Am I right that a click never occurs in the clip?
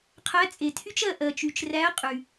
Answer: yes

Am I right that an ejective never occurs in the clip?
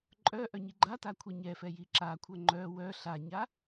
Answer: no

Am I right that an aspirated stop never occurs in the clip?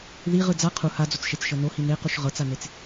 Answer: no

